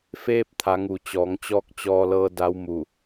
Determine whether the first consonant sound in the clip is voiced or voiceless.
voiceless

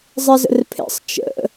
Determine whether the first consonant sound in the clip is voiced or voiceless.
voiced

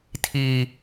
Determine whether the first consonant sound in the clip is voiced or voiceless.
voiceless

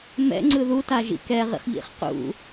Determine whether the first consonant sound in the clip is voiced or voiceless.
voiced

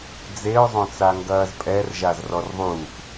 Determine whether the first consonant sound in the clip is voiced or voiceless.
voiced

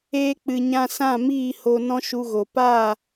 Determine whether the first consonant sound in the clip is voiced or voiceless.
voiceless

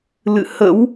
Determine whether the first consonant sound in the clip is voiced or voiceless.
voiced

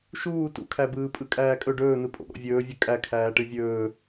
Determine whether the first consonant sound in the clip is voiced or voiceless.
voiceless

